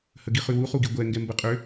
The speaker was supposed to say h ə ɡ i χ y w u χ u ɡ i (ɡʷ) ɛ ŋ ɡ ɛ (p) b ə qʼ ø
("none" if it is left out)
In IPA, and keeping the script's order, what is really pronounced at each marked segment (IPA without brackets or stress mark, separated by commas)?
ɡʷ, m